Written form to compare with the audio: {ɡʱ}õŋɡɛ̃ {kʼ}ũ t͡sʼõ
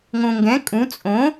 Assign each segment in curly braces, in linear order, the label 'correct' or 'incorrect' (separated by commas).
incorrect, correct